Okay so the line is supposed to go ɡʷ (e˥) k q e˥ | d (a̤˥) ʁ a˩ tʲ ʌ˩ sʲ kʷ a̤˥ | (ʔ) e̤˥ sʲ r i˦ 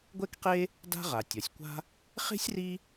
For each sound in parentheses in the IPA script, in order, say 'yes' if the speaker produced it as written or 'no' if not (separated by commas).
no, yes, no